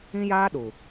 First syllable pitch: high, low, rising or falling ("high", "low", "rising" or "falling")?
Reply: high